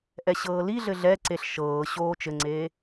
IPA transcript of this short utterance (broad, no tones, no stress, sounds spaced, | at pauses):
ʔ ɛ ɕ ɤː l i ɮ ɘ ɮ ɛ ǀ e ɬ ʃ ɤː ɕ oː t͡ʃ ɘ ŋ͡ǀ eː